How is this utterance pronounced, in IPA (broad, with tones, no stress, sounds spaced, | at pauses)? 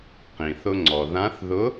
q ĩ˩ θ ʊ˧ ŋ͡ǀ ɔ˩ ð ã˧˥ θ ð ʊ˧˥